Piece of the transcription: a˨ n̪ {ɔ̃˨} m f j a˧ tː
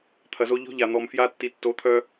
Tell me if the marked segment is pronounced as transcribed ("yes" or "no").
no